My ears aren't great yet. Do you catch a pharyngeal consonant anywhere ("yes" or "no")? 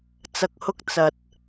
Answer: no